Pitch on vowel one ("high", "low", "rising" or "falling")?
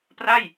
falling